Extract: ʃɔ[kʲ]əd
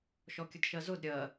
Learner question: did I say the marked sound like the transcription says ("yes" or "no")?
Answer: yes